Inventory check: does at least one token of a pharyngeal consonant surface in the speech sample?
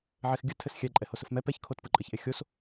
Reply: yes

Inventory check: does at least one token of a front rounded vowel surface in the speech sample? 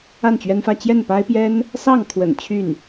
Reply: yes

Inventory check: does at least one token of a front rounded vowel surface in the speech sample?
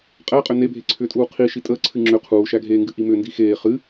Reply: yes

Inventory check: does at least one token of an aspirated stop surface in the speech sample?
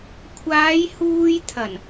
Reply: yes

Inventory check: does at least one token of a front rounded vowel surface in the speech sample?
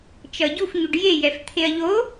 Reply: no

